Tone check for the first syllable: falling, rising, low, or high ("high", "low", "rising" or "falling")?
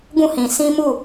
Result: falling